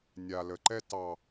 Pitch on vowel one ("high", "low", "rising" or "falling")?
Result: low